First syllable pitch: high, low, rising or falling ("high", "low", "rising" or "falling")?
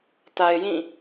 low